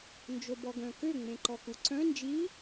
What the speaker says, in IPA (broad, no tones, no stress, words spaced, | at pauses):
nd͡ʒobɔɡœ̃kø ŋ͡mẽǃɔkuǀœ̃ nd͡ʒi